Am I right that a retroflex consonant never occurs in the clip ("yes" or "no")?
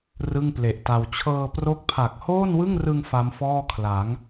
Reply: yes